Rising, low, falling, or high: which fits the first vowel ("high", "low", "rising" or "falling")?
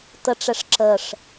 high